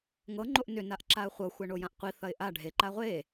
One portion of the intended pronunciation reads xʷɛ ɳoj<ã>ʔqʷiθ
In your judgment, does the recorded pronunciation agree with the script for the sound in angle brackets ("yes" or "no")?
yes